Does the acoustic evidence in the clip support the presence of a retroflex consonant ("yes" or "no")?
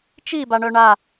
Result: yes